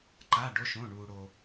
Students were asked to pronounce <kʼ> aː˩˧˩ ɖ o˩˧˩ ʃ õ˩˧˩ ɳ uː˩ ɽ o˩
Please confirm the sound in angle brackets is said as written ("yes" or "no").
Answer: no